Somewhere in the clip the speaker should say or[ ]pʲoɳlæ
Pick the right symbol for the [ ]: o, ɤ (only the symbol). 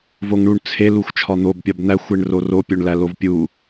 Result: o